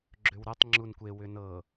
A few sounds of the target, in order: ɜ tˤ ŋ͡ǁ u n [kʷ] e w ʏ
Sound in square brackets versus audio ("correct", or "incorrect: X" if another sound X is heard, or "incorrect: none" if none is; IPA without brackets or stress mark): correct